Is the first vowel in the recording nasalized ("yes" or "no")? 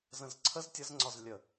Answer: yes